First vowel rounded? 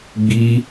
no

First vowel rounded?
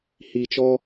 no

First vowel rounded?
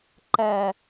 no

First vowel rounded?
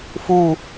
yes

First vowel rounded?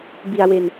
no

